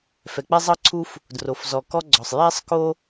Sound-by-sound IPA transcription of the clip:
f ɛ˩ k͡p ɛ˥ zˤ ɤ˥ ǀʰ u˥ f | d r o˩ f z ɔ˩ k ɔ˥ ɡ͡ǀ ɔ˩ sˤ j ɛ˥ sˤ k o˥

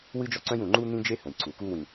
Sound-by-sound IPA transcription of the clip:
w ɨ˦ d͡ʒ ɔ˦ ǀ œ̃˦ j ũ˨ ŋ͡ǃ u˦ n̪ ĩ˦ d͡ʒ e˦ h ə̃˨ j ǀ u˨ k u˦ w ĩ˨

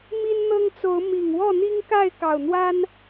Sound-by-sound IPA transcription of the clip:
m i˦ n n̪ ɤ˦ ŋ t͡s o˨˦ ʊ̯ m i˨˩ ŋ w ɔ˥˨ n̪ i˦ ŋ k a˥˨ ɪ̯ k ɑ˨˩ ʊ̯ n̪ w a˦ n

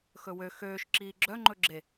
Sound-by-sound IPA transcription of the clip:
x ɵ w ø x øː ʃ ǁ iː ɡ͡ǁ œ ŋ͡ǃ ɵ ɡ͡ǁ e

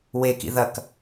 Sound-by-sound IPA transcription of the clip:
w e k ḭ ð ɐ k

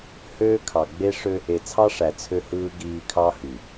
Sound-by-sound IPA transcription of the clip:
h øː˦ kʰ ɑ˨ ɡ͡b e˦ ʂ ø˦ | e˨ t͡sʰ ɑ˦ ʂ æ˨ t͡sʰ ø˦ h ɯː˦ ɡ iː˦ kʰ ɑ˦ h y˨

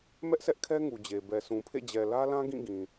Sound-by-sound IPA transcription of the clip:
m ɛ˦ ʔ sʰ ɛ˦ ʔ kʰ ɛ˦ ŋ u˨ d͡ʑ e˨ b ɛ˨ s ũ˨ pʰ ḛ˦˨ d͡ʑ ɛ˨ l ä˦ l ã˦ ɡ ĩ˦˨ ɡ ĩ˨

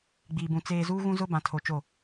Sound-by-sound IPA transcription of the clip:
ɡ͡b iː˨ b ũ˨ t͡s eː˨ z uː˦ ɣ ũ˦ z ʊ˦ b ã˨ tʰ o˨ t͡ʃ o˦˨

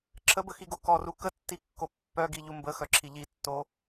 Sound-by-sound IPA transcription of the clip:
ǁʰ ə b ə x i ɡ o k ɔ r u k ə tː i kː o pː œ ɡ i ʎ u m b ə x œ ǁʰ i ʎ i tː o

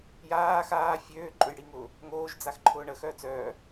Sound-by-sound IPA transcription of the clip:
j aː x aː fʲ øː ǃʼ ø j ɽ i ŋ ʊː | ŋ oː ʒ d͡z a x ǃʰ ʊː ɳ ə x œː t͡s œː

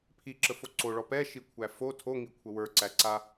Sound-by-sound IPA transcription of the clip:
pʰ i ǁ ə f o ǀ o ɭ ɔ p ɛ ʃ i kʷʰ æ f o tʰ o ŋ i kʷʰ ə w ə˞ ǀ æ ǀ a

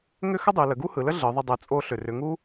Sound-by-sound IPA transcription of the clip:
ŋ ʏ˥ x ə˥ dˤ ɯ˩˧ l ə˩˧ ɡ u˥ h ɯ˩˧ l ə˥ ɮ ɯ˩˧ ðˤ ə˧ dˤ ɯ˩˧ t͡sʼ o˧ ɬ ʏ˩ r ʏ˩˧ ŋ u˥

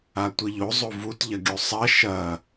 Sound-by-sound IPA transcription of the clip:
a tʷ i ʎ o zˤ o v u t ʎ ɐ ɡʲ o sˤ ɐ ʃ ɐ

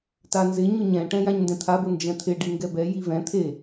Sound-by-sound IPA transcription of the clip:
t a n z ɪ ɲ ʊ ɲ ɛ̃ ʈ ɛ̃ j ã ɲ n d ɛ̃ t̪ʰ a b ʊ n d͡ʒ ɛ̃ t̪ʰ ɪ ɖ i ŋ ɡ ɛ b ɛ j i v ɛ̃ t̪ʰ e

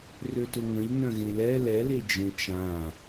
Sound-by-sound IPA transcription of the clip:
r ø t ʊ ŋ ə̃ ʎ n œ̃ ɣ ẽ l ɛ l ɛ l e d͡ʒ ẽ t͡ʃ ã

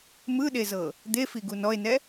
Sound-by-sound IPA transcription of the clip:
m ɯ ɗ e z ɤ | d̪ e f i ɡ u n ɔ e̯ n ɛ

